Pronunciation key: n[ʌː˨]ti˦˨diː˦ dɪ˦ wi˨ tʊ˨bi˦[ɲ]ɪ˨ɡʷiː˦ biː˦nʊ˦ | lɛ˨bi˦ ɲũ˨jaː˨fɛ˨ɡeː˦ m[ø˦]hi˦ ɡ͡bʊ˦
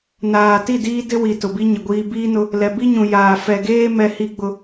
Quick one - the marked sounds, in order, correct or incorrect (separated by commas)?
incorrect, correct, incorrect